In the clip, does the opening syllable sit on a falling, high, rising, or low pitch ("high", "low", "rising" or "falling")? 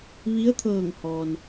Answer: rising